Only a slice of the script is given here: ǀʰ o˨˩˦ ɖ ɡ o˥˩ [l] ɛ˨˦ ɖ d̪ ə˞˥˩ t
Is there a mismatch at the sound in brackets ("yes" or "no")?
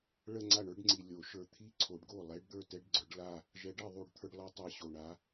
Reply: yes